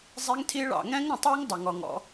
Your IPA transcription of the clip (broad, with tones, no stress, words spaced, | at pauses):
zˤi˦ŋtʰi˦ɭɑ̰˨ ŋɛ̃˦ŋɾə̃˨tˤəː˦ŋ dˤʌ˨ŋɔ˨ŋɔ̰˦